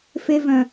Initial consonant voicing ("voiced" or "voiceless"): voiceless